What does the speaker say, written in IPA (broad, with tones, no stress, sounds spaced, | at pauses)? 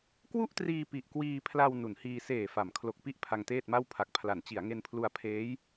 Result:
k w u˥˩ ʔ t r iː˧ p i˨˩ ʔ k w iː˧ pʰ l a˧ w n u˩˦ n h iː˧ s eː˨˩ f a˩˦ m kʰ l o˨˩ k̚ p i˥˩ ʔ pʰ a˧ ŋ t eː˥˩ t̚ m a˥˩ w pʰ a˨˩ k̚ pʰ l a˩˦ n t͡ɕ i˩˦ a̯ ŋ e˧ n pʰ l u˧ a̯ pʰ eː˦˥ j